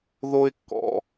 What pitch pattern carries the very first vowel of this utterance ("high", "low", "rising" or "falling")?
high